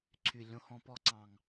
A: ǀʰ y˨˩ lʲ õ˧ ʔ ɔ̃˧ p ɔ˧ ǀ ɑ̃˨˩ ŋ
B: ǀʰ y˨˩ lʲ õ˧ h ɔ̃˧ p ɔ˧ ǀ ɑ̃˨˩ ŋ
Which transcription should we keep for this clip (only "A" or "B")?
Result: B